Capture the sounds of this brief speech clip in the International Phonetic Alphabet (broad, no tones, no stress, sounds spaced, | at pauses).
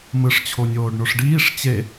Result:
m ɯ ʂ t͡ɕʰ o nʲ oː ɖ ɳ o ʂ ɖ iː ʂ t͡ɕ e